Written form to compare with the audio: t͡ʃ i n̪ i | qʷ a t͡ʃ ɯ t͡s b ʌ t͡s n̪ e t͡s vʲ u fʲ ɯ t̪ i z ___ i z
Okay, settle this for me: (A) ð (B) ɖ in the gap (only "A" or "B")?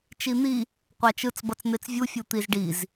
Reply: B